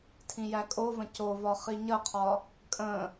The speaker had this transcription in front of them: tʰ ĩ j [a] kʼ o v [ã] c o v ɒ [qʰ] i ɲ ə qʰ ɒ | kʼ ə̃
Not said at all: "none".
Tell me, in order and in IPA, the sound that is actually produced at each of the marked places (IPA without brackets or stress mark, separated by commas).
æ, ə̃, χ